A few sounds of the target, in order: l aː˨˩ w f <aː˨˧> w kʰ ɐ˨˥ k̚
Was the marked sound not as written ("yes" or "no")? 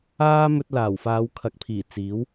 no